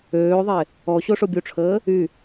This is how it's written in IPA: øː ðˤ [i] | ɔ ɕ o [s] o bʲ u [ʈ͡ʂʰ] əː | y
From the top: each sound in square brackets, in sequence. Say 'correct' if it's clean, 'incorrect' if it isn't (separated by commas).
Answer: incorrect, incorrect, correct